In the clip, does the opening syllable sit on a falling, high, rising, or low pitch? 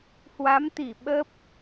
rising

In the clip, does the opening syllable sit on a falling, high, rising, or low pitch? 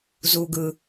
low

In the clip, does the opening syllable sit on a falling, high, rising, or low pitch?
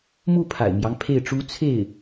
falling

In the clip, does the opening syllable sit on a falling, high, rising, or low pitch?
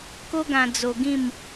high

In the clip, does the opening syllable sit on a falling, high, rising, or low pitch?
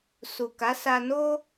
low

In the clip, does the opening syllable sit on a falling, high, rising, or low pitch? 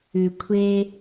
low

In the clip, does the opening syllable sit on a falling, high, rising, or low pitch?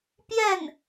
falling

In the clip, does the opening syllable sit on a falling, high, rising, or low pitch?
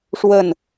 falling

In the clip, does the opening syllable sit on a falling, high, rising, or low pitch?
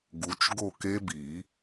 rising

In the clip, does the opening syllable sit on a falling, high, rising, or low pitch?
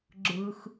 low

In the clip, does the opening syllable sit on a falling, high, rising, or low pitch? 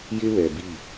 high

